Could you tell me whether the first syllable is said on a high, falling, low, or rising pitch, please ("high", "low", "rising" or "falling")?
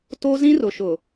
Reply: high